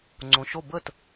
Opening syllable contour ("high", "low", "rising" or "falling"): low